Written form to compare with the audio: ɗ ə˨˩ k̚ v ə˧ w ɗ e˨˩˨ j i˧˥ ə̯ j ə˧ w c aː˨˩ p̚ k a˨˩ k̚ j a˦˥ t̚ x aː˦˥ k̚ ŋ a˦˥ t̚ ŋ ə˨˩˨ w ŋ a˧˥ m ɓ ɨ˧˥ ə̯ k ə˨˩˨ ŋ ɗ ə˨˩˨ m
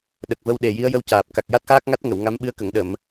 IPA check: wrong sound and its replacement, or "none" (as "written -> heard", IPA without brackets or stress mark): e˨˩˨ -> e˨˩